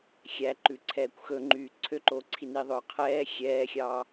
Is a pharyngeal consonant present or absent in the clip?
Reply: absent